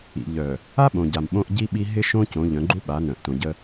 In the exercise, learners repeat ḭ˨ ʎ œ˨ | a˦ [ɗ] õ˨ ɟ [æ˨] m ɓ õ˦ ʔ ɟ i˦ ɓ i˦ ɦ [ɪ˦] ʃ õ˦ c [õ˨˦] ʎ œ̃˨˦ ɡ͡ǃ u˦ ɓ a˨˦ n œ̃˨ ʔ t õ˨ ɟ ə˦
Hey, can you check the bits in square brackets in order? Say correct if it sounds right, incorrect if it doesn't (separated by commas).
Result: incorrect, incorrect, correct, correct